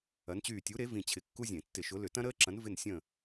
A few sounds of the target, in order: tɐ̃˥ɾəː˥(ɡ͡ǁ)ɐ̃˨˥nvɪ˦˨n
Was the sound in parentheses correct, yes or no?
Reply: no